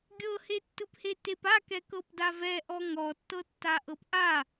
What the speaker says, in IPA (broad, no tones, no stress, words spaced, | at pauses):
ɡʲɤhetːɯphe tepakɛ kɤpdavɛʔɔ ŋɔtːɤtːa ʔɤpʔa